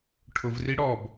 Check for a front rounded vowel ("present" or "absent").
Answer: absent